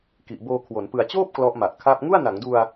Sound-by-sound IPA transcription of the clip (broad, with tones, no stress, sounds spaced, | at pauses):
k i˨˩ ʔ b oː˧ kʰ w o˩˦ n p ɯ˨˩ a̯ t͡ɕ oː˥˩ p̚ k l ɔ˦˥ ʔ m a˨˩ ʔ kʰ a˥˩ p̚ ŋ u˥˩ a̯ n a˩˦ ŋ d u˧ a̯